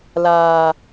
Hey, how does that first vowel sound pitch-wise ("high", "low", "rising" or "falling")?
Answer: low